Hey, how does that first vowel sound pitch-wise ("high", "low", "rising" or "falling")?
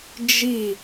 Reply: falling